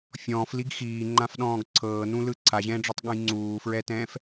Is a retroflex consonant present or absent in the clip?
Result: present